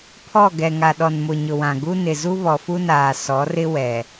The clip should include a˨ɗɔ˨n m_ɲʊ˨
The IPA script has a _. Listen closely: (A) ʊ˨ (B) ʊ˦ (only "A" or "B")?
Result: A